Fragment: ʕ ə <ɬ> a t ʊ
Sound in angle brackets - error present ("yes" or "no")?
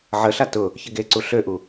no